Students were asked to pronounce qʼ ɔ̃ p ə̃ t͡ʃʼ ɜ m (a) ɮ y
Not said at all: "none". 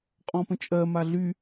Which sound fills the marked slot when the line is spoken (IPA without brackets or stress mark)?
a